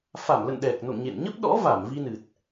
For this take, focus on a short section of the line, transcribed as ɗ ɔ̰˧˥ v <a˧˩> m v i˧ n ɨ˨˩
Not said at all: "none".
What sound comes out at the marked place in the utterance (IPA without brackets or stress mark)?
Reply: a˧˩